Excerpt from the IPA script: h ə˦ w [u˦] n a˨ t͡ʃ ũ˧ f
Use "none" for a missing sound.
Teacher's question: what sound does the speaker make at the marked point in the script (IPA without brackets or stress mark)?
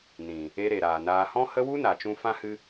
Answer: u˦